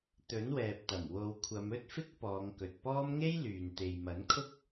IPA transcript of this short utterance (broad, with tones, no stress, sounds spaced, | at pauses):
t̪ ɵ˨˥ n w ɛː˨ p̚ t̪ ɐ˨˩ m w o˨˧ w kʷʰ ɐ˨˧ m ɵ˥ t̚ f ɪ˥ k̚ p ɔː˨˧ ŋ k ɵ˨ t̚ p ɔː˥ m ŋ e˥ j l yː˨ n t̪ e˨ j m ɐ˨˥ n kʰ ʊ˥ k̚